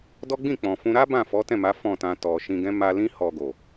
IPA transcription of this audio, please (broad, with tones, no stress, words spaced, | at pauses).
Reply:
dɔ˦ɡ͡bĩ˦˨k͡pɔ̃˨fũ˧ ɾa˦ bã˦˨fɔ˨˦tɛ̃˦˨ma˨˦ fɔ̃˦˨tã˧ tɔ˨ʃĩ˧ɡɛ̃˦ ma˧lĩ˦ hɔ˧ɡo˨